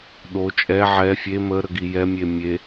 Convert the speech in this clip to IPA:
ɗ o t͡ʃʼ ɛ ʕ ɛ fʲ e m ə ɾ ə ɡ i j ɛ mʲ e mʲ e

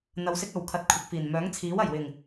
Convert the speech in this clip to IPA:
n̪ ɐ˧ w s ɪ˥ k̚ ɐ˨ w kʰ ɐ˧ t̚ kʷʰ ɪ˨ k̚ f iː˨˩ n m œː˨˥ ŋ t͡sʰ iː˨˥ w ɐ˨˩ j w ɪ˨˩ ŋ

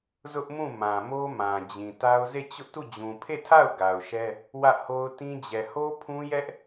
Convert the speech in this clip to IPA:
z ʊ˦ ʔ m ũ˦˨ m ã˨ m o˦ m ã˨ d͡ʑ ĩ˨ t a˦ ʊ̯ z e˦˨ t͡ɕ ʊ˦ ʔ t u˦˨ d͡ʑ ũ˨ pʰ e˦˨ tʰ a˦˨ ʊ̯ ɡ a˨ ʊ̯ ʃ ɛ˦ | w ä˦ ʔ h o˦ ʊ̯ t ĩ˦ d͡ʑ ɛ˨ h o˦ pʰ ũ˦ j ɛ˦ ʔ

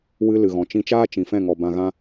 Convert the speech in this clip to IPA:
w ɨ˦ l ɨ˨ ɣ ɔ̃˨ t͡ʃ ĩ˧ t͡ʃ aː˦ t͡ʃ ĩ˨ f ɛ̃˦˨ ŋ ɔ˨ b ã˧ ɣ ã˦

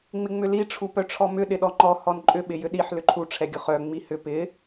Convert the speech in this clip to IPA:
ŋ͡m ɪ ŋ͡m ʏ l i ʈ͡ʂʰ u p œ ʈ͡ʂʰ ɔ m ʏ ɗ ɪ ɗ ɔ ŋ͡ǃ ɔ h ɔ n ǃʼ ʏ ɓ ɪ j ʏ ɗ i ħ l ʏ ǃʰ u ʈ͡ʂʰ ɛ ɡʲ ʊ χ œ ŋ͡m i h ʏ p ɪ

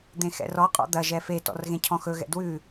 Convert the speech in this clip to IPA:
d̪ ẽ x ɛ̰ r ɔ qʼ ɔ̰ d̪ ɐ ʒ ɛ f e t ɔ̰ r ɣ ẽ cʰ ɔ̃ x ɵ ɣ ɛ̰ d w ʉ

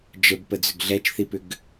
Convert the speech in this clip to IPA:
d͡ʒ ə b p ə d͡z ʏ ɡ ɮ ɛ t͡ʃ θ i p ʏ ɡ

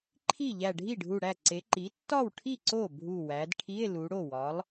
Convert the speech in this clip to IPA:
ǃʰ i˥˩ ʎ æ˧˩ ɖʱ i˥˩ ɖʱ u˧˩ ɽ æ˥˩ ǀ e˩˧ ǃ i˩˥ tː ɒ˥˩ w ʈʰ i˥˩ ǀ o˥˩ bʱ u˧˩ w æ˩˧ d ʈʰ i˧˥˧ e̯ l u˩˧ ɽ o˥˩ w ɒ˩˥ lˠ

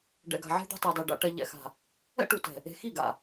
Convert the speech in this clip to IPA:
ɖ ɛ̰˨ ɡ a̤˨ ʕ e̤˦ d̪ o̤˦ tˤ e˨ dˤ e˨ ɖ a̰˨ ʈ ɛ˨ ʎ ɛ̰˨ x a̤˨ | ɛ̰˦ ʈ u˨ t ɛ̤˨ | e̤˨ x i˦˨ ɡ a̰˨

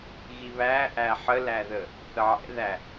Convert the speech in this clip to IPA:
ɣ i β æ ʔ æ ħ ə l æ ð ə | θ ə ʕ ɛ̰ ð æ

